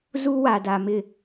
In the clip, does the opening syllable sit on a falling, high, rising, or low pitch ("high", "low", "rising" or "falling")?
high